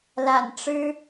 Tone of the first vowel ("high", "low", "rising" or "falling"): low